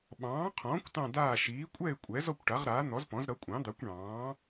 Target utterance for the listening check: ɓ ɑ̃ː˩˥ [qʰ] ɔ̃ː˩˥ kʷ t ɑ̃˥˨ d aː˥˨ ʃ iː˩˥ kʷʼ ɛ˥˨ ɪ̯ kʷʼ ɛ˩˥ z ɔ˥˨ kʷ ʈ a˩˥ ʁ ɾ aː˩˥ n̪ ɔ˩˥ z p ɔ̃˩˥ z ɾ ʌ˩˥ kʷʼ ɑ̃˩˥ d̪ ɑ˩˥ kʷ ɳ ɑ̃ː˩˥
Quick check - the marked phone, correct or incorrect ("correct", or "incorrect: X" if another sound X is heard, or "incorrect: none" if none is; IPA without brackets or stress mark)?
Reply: correct